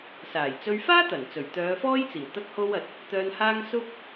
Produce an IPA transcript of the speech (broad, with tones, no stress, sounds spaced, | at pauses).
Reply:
s aː˨˩ j t͡s ɵ˧ ɥ f aː˥ t̪ ɐ˨˩ n t͡s ɵ˨˩ ɥ t̪ œː˨˧ f ɔː˥ j t͡s iː˨˩ w t̪ ɐ˥ k̚ h o˥ w ɐ˧ t̚ | t̪ œː˧ n h aː˥ ŋ s ʊ˥ k̚